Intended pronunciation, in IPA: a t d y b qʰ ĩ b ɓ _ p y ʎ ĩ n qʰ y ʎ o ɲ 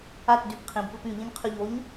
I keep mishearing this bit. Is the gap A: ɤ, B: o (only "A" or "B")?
A